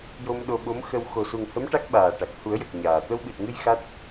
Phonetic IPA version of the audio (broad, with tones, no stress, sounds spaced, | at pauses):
j o˧ m ɗ o˧ ɓ o˧˥ m x ə˧ w x o˨˩ s u˨˩ ŋ h ə˧˥ m ʈ a˦˥ k̚ ɓ aː˨˩ ʈ a˨˩ k̚ h u˨˩˦ ə̯ j ə˨˩ k̚ ɲ aː˨˩ t̪ ə˧ w ɓ ɨ˨˩ t̚ ŋ ɨ˧ j x a˦˥ t̚